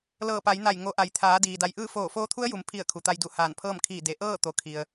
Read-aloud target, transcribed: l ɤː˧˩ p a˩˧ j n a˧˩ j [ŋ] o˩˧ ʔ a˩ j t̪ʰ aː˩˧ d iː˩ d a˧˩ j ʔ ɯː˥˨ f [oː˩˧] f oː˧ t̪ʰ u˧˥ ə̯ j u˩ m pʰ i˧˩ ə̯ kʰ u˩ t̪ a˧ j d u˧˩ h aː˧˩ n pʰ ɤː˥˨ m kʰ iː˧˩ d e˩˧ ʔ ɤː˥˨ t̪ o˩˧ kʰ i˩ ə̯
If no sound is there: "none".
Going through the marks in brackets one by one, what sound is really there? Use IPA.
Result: ŋ, oː˧˩

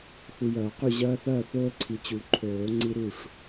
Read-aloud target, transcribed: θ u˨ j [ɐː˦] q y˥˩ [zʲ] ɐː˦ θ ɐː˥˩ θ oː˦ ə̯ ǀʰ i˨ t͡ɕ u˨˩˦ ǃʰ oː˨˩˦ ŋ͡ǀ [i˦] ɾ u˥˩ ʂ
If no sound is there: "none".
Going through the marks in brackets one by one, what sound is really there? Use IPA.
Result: ɐː˨˩˦, ʑ, i˦

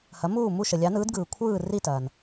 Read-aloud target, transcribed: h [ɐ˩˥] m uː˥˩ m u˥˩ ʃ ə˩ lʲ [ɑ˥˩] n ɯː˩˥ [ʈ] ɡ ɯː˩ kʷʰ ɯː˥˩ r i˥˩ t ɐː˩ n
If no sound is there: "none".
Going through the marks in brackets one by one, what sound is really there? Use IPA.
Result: ɐ˩˥, ɑ˩˥, d

